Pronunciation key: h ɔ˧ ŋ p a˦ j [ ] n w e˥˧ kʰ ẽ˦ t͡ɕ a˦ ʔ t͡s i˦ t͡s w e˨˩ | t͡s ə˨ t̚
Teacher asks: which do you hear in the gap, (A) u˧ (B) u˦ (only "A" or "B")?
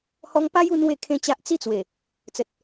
A